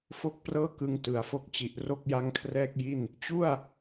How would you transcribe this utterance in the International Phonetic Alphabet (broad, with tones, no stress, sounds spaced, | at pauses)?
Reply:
f o˥˩ k̚ p r ɤː˥˩ k ɯ˧ ŋ t ɯ˩˦ a̯ f o˦˥ k̚ t͡ɕ i˨˩ ʔ r o˥˩ k̚ j a˦˥ ŋ kʰ r ɛː˥˩ k̚ j i˥˩ n | t͡ɕ u˥˩ a̯